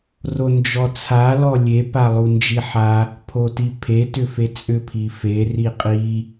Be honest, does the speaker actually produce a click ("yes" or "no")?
no